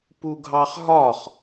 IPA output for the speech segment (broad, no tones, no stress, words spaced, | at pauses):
puɡʱɑχɦɒχ